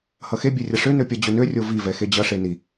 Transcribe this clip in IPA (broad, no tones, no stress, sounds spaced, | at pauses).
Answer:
h ʌ x e bʲ ø rʲ ʌ ʂ ø n ø pʲ ʌ d͡ʑ ø n ø rʲ o v i v ɛ x e d͡ʑ ʌ ʂ e n i